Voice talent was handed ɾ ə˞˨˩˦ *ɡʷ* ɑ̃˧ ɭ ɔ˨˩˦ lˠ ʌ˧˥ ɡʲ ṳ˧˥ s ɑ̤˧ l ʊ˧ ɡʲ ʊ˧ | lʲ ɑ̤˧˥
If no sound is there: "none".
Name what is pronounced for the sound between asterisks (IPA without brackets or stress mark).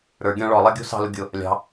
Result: ɡʲ